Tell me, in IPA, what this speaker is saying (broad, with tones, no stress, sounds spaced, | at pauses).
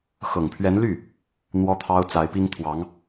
x ɤ˨˩ ŋ pʰ ɥ ɛ˧˥ n l y˥˩ | n̪ w ɔ˥ t̪ʰ ɑ˥ ʊ̯ t͡s a˧˥ ɪ̯ p i˥ ŋ t̪ʰ w ɑ˧˥ ŋ